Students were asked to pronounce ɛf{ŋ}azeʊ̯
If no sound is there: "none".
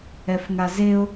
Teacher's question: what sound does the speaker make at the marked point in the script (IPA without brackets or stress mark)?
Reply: ŋ